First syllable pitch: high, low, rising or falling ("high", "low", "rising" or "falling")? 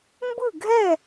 falling